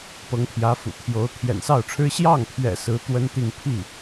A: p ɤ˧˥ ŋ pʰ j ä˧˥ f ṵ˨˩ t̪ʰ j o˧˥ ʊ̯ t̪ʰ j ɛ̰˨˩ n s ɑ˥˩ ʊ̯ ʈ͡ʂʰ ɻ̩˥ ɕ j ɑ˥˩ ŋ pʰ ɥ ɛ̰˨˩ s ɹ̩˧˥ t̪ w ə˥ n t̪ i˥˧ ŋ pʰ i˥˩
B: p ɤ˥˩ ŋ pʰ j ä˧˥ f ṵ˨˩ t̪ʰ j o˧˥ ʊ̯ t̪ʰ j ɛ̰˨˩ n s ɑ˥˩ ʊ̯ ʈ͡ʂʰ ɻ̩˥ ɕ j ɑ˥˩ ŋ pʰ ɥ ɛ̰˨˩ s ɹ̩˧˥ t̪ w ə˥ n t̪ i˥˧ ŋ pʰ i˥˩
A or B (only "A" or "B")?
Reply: A